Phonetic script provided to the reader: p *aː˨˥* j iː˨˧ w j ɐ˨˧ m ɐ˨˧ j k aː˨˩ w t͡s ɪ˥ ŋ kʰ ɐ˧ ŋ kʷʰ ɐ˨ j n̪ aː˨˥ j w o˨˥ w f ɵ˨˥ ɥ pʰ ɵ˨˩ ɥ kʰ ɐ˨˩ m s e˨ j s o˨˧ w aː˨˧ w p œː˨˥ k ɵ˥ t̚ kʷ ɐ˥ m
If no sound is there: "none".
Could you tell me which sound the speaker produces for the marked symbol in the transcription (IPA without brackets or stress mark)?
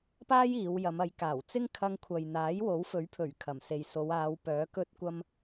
aː˥